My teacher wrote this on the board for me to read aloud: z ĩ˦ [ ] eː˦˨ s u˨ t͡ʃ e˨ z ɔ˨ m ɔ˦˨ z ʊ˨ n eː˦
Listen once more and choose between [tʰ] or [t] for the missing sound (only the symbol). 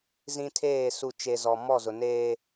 tʰ